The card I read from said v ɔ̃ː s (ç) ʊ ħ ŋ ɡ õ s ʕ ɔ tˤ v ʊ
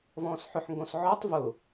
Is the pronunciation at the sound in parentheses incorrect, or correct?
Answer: incorrect